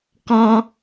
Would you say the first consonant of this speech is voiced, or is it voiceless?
voiceless